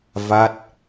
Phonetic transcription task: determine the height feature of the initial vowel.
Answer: low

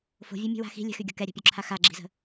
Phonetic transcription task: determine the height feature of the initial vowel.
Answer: mid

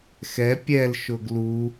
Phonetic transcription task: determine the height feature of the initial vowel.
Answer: mid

